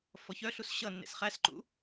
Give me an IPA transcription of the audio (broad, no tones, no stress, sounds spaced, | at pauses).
f ɔ ç œ ɬ u s ɕ ʌ nː ḛ s χ æ s ǃ ṵ